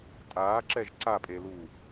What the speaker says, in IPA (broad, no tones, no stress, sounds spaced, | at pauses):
tʼ aː ǁ ɛ ʒ ǀ a pʼ e l uː